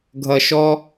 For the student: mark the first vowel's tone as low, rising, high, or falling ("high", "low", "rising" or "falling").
low